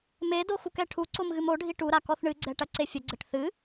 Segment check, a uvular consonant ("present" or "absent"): absent